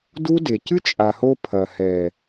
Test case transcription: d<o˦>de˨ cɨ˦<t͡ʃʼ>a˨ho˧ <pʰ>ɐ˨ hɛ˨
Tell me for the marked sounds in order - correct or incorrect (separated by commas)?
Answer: incorrect, correct, correct